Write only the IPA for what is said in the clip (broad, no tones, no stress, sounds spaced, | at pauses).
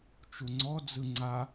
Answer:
t͡ʃ u ŋ͡ǀ ɔ d͡z ɯ ŋ͡ǀ a